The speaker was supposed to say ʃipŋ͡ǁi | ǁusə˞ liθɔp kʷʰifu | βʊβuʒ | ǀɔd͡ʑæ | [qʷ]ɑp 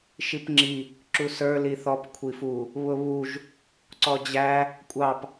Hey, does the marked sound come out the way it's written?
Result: no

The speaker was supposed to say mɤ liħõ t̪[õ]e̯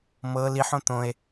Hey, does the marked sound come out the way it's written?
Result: yes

